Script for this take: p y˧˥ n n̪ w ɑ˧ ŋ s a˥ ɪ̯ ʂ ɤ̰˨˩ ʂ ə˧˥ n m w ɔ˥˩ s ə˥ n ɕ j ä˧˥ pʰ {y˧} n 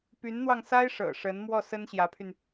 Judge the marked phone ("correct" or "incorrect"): correct